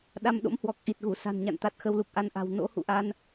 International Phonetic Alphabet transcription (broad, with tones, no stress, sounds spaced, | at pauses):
ɗ a˧ m ɗ o̰˧˥ m h w ɔ˨˩ k̚ ʔ i˨˩ t̚ ɣ u˧˩ s a̤˨˩ n ɲ a̰˧˨ n t̪ a˨˩ t̚ x ə˧ w l u˨˩ k̚ ʔ a˧ n ʔ a̤˨˩ w n o̰˧˥ h ṵ˧˨ ʔ a˧ n